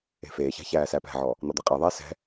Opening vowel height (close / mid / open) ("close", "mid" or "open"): mid